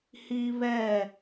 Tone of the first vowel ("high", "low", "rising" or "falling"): high